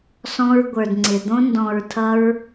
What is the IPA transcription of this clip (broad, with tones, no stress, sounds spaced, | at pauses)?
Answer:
s ɔ̃˧ ɹ ɡʷ ə˞˨ d ŋ͡ǀ ɪ˨ d̪ õ˧ n d ɔ̃˨ ɹ tʰ ʌ˧ ɹ